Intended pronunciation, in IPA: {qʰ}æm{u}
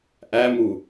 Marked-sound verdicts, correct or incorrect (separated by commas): incorrect, correct